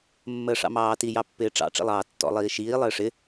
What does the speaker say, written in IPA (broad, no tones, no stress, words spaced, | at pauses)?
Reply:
mːəːʂɑ̰mɑːti jɑpːɪːʈ͡ʂɑ̰ ʈ͡ʂḭlˠɑːtːɔ̰ lˠiːʃiː lˠɪːʂɪ